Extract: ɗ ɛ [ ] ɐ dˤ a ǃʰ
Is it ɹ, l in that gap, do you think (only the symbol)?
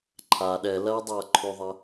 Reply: l